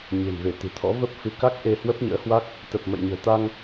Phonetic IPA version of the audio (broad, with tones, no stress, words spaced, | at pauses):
ɲe̤˨˩mve˧˩t̪ɨ̤˨˩t̪ʰɔ̰˧˥ və˦˥p̚fɨ˨˦ka˦˥k̚ ʔe˧hwə˦˥p̚ɲə̰ː˧˥hwa˦˥k̚ | t̪ə˨˩p̚ mə̰˧˨jɲə̤ː˨˩t̪a˧ŋ